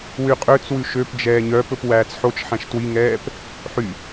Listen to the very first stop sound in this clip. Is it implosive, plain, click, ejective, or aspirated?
ejective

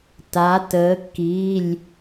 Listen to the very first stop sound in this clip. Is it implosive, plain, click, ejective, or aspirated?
plain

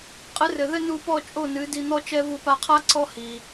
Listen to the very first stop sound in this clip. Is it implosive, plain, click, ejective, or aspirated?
ejective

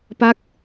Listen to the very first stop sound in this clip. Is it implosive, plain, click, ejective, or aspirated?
plain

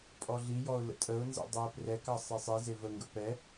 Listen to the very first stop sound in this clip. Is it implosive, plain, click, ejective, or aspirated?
ejective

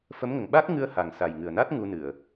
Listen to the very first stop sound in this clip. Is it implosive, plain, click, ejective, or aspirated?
implosive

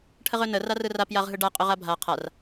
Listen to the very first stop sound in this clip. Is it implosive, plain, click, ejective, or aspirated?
aspirated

